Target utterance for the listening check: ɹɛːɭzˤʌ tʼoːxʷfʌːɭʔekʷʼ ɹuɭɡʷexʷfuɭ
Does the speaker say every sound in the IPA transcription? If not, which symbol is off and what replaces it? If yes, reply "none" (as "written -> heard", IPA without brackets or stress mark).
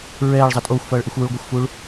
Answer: kʷʼ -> xʷ